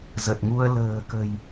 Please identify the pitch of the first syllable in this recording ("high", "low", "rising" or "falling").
low